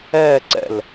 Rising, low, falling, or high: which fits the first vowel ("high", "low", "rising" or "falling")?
falling